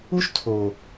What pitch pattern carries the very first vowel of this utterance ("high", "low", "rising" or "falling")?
high